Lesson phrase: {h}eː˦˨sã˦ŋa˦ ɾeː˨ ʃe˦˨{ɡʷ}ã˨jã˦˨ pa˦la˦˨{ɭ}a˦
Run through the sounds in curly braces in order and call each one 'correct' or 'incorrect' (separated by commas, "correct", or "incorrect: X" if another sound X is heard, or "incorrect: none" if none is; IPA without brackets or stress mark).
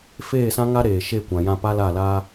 incorrect: f, incorrect: kʷ, incorrect: l